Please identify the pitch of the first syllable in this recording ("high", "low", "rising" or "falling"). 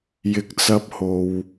rising